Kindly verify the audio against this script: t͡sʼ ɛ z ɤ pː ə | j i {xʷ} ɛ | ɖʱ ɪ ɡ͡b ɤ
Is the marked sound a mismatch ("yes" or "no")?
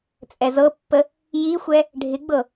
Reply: no